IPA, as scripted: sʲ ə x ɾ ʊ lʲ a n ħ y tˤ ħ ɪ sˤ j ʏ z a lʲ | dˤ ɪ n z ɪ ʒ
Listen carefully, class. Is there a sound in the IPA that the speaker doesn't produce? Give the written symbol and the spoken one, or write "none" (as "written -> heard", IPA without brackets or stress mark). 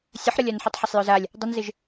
x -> ħ